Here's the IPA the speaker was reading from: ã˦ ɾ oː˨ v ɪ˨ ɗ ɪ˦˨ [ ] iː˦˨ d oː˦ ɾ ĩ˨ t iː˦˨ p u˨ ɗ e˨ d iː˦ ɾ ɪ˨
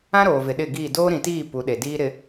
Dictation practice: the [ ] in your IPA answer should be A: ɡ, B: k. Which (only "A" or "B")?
A